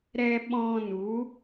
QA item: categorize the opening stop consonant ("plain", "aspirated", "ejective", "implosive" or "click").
implosive